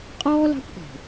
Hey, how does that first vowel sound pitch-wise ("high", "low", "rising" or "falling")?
high